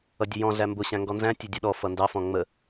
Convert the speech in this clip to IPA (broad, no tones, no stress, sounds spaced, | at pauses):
ʌ dʲ ə j ɔ̃ ɮ æ m b ʊ ɕ æ̃ ŋ ɡ ɔ n z æ̃ tʲ ʌ dʲ ɔ ɗ ɔ f ʌ n d ɑ f ɔ̃ ŋ͡m ə